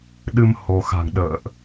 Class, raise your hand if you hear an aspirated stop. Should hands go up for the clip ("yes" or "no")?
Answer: no